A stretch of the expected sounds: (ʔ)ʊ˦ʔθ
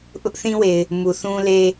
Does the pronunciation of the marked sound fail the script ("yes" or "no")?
no